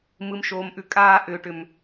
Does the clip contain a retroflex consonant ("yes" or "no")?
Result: yes